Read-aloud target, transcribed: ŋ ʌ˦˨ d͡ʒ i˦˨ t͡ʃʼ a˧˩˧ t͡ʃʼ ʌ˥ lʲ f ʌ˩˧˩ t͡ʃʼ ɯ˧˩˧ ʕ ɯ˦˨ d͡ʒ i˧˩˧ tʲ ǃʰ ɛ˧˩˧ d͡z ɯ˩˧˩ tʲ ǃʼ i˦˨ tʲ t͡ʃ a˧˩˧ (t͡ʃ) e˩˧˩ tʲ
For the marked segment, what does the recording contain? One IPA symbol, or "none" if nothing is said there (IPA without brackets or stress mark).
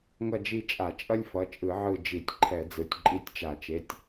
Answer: t͡ʃ